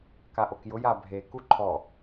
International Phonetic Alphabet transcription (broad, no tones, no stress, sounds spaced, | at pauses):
k a ʔ o k j ʊ j a bʱ e k u ǃʰ ɔ